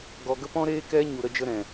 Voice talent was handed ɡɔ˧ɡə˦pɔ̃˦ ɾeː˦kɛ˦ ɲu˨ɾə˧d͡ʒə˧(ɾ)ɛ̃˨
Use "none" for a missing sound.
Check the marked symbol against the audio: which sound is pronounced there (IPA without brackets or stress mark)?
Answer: ɾ